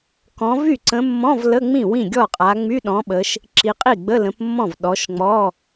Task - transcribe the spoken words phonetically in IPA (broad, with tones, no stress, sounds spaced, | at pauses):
k ɔ̃˨˦ v y˥˩ ǀ ə̃˨˦ mː ɔ̃˧˥˧ v l ə˧˥˧ ŋ͡m ĩ˥˩ w ĩ˥˩ ɡʲ ɔ˥˩ qʼ a˨˦ ŋ͡m y˧˥˧ ɗ ɔ̃˨˦ ɓ ə˨˦ ʃ | ǁ i˨˦ qʼ i˥˩ ɡ͡b ə˧˥˧ l ə̃˨˦ p mː ɔ̃˥˩ v ɗ ɔ˨˦ ʃ ŋ͡m ɔ˧˥˧